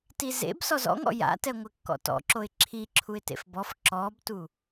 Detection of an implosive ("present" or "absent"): absent